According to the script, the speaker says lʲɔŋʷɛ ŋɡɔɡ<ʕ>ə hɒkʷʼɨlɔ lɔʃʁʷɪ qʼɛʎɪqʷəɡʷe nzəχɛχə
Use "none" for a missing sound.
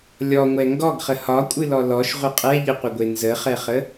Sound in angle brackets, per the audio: χ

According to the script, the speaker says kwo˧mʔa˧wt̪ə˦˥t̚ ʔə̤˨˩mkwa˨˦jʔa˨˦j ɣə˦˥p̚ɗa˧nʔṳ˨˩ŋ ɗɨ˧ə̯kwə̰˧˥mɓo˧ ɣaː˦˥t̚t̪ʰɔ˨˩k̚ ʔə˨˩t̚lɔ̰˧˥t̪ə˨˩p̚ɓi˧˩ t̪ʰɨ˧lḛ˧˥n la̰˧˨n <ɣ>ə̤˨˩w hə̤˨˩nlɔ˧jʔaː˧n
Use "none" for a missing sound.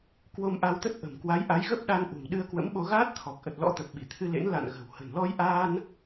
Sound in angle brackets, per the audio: ɣ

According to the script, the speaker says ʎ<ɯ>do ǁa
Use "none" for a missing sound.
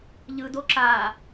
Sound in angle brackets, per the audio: ɯ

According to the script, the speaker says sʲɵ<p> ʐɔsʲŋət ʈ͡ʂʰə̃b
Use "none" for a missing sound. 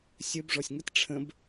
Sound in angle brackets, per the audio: b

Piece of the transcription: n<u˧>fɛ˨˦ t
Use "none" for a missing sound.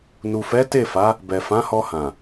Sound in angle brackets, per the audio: u˨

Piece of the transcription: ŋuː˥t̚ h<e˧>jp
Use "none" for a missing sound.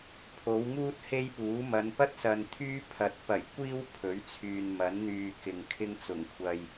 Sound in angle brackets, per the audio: e˥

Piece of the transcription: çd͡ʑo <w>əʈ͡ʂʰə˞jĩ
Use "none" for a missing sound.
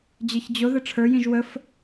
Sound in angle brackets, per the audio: ð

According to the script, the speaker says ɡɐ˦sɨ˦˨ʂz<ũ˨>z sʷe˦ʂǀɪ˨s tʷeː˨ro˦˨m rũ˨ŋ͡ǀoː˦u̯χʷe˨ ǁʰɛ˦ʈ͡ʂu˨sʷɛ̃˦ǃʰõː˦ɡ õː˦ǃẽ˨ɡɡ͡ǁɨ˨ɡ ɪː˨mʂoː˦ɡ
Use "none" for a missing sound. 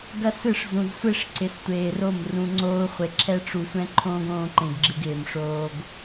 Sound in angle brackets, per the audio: ũ˨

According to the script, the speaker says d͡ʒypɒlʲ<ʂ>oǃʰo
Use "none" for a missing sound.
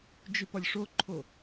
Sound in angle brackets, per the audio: ʂ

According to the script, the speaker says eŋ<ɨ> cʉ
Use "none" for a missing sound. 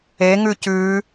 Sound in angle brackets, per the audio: ʉ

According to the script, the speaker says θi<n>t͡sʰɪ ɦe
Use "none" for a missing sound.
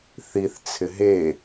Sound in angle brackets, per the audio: θ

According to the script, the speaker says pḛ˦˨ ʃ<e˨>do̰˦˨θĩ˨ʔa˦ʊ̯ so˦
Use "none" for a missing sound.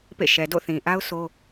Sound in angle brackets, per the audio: ɛ˨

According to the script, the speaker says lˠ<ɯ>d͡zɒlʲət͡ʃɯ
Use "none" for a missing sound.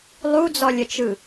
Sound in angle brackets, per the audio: u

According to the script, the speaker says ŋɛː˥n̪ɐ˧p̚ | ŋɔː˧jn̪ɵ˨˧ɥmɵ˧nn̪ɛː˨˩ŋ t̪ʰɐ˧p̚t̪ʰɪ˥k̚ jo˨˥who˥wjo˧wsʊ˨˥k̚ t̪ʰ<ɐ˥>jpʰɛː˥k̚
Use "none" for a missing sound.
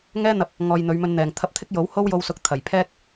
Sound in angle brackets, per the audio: ɐ˨˩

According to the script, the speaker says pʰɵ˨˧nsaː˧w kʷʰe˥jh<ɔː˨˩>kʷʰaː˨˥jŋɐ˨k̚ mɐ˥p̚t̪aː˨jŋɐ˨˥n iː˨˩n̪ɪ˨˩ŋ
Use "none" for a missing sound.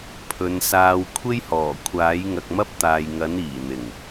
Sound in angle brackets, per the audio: ɔː˨˩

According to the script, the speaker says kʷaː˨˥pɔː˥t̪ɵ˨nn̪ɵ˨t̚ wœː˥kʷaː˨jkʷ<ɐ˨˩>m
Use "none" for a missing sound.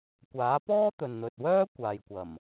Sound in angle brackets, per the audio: ɐ˨˩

